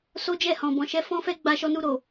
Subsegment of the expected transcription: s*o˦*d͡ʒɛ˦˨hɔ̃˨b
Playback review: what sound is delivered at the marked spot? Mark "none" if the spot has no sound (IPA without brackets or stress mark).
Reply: o˦